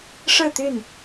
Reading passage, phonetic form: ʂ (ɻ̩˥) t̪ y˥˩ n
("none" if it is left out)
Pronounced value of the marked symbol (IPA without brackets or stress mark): ɻ̩˥˧